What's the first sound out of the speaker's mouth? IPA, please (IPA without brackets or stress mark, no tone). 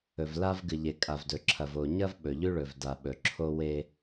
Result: ɵ